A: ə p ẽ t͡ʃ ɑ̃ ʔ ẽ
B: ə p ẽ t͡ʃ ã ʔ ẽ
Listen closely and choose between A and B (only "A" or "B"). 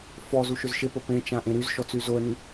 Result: B